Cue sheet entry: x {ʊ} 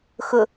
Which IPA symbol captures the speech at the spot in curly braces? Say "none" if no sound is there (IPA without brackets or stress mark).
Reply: ʊ